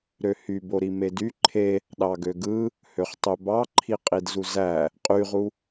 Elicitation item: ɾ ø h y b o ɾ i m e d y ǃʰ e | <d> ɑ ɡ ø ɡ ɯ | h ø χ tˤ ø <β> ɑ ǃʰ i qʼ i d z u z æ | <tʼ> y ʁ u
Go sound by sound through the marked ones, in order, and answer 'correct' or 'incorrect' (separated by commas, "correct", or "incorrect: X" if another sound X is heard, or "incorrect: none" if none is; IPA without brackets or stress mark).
incorrect: ɗ, incorrect: b, incorrect: qʼ